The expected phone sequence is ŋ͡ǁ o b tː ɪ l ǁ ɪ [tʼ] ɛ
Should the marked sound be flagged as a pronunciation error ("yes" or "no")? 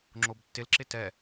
yes